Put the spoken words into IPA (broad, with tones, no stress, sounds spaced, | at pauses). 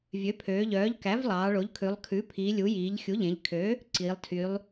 vʲ ø˩˥ pʰ øː˩˧ ʎ œː˩˥ ʎ k æ˩˥ v lˠ ɑː˩˧ ɭ o˩˥ ʎ kʰ ʉ˩˧ lˠ kʰ ʉ˩˥ pʰ iː˩˧ lʲ u˩˥ j iː˩˧ ʎ xʲ u˩˥ ʎ ẽ˩˧ ʎ kʰ ø˩˥ | ǀ iː˩˧ lˠ tʰ y˩˧ lˠ